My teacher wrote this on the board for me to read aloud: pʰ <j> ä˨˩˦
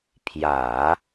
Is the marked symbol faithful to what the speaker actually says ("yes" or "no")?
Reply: yes